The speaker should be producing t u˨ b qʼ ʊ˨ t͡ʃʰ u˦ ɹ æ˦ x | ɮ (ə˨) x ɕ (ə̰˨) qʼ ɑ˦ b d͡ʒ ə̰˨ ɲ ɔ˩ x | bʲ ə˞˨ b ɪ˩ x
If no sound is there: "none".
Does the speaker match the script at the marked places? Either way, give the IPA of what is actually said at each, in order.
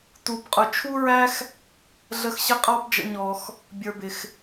ə˨, ə˨

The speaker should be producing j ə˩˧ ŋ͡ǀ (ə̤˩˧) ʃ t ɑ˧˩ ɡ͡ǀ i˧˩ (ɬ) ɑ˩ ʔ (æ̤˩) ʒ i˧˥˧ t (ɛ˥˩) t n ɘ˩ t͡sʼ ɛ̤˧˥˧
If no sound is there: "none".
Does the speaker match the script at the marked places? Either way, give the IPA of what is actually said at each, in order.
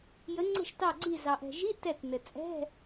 ə̤˧˩, z, ɛ̤˩, ɛ˧˩

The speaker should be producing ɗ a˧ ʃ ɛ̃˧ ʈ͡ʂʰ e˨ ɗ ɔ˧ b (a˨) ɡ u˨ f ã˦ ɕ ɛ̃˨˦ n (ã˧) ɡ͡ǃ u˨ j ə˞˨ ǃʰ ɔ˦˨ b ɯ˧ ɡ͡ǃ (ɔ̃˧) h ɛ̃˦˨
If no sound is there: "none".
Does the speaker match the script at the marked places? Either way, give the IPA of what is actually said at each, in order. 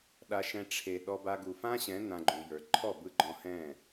a˧, ã˧, ɔ̃˧

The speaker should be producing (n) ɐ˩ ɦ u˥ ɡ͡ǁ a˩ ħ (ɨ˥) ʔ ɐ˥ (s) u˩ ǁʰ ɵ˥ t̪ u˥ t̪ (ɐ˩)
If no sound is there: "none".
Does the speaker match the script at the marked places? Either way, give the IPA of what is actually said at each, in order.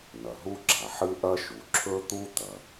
n, ɨ˥, ʃ, ɐ˩

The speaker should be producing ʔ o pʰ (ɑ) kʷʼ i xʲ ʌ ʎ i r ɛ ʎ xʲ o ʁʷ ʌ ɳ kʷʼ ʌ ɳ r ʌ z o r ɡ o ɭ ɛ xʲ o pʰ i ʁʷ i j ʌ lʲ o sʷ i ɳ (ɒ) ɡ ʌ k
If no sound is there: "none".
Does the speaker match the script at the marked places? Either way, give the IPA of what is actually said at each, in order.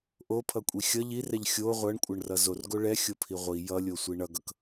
ʌ, ʌ

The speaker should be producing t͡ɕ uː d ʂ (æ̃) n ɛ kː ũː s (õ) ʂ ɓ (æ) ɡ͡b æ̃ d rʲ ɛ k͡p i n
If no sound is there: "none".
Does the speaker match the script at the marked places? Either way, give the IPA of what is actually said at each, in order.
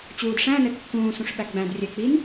æ̃, ũ, æ

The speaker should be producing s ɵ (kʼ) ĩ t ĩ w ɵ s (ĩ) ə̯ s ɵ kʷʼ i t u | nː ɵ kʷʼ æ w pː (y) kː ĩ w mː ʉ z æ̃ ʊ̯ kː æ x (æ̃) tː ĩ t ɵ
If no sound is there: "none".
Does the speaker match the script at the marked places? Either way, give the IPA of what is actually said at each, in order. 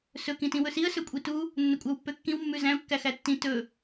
k, i, ø, æ

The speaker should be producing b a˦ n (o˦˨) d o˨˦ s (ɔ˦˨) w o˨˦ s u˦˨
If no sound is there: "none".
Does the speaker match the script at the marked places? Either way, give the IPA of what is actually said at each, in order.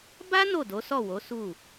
o˦˨, ɔ˦˨

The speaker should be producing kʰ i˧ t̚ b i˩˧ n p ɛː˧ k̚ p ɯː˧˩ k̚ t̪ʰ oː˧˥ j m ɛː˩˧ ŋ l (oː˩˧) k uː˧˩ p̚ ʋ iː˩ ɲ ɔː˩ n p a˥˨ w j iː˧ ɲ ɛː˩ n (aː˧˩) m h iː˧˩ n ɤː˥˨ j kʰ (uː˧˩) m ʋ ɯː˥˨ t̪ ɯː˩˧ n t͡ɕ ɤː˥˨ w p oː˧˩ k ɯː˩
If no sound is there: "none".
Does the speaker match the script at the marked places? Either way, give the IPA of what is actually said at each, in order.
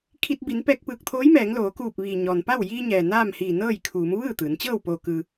oː˩˧, aː˥˨, uː˩˧

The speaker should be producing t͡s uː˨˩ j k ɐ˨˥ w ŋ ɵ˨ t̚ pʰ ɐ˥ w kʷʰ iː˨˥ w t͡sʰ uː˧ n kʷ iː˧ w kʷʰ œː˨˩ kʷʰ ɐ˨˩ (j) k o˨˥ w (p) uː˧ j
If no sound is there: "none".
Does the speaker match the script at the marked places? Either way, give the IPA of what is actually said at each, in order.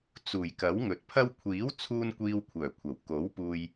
w, p

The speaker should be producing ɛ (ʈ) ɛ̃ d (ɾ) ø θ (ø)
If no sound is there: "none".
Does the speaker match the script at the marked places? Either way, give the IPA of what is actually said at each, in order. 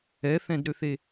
θ, ɾ, e

